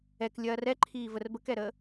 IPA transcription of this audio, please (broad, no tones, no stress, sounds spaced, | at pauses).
ɛ k lʲ ɐː r ɛ ǃʰ iː v ə r b ə k ɛ ɾ əː